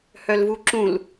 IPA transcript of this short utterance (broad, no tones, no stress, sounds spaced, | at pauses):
h œ l v u ǁ ũ l